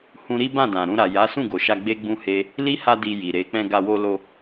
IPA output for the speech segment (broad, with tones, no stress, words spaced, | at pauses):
hũ˦ ɾi˦bã˦˨dã˨ ɾũ˧ɾa˨ ja˨˦sũ˦˨ɡo˨ʃa˧ ɡ͡be˦ɡ͡bũ˦he˦ | li˦ ha˧di˨ ji˨ɾe˨˦ k͡pɛ̃˧ɡa˧ wo˧lo˧